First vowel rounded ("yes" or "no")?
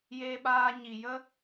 no